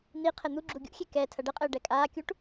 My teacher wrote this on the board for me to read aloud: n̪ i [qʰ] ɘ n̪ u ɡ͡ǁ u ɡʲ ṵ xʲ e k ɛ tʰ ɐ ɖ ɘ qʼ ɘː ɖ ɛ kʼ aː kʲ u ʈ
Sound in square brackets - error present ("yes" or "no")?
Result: no